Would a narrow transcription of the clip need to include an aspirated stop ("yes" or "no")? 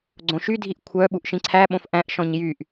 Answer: yes